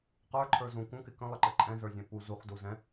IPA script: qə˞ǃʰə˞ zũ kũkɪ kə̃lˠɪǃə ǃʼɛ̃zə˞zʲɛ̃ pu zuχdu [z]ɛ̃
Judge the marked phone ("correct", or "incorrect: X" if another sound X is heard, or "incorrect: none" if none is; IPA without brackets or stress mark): correct